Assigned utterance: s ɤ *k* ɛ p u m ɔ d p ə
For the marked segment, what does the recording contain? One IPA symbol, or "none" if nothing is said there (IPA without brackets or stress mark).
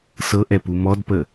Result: ʔ